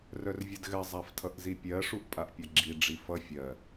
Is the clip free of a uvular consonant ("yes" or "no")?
yes